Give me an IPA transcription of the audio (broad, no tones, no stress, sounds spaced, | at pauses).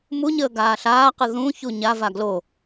m u ɲ əː ɡ aː ɬ aː q ɯ ð ũ ç u ɲ a v a ɡ l o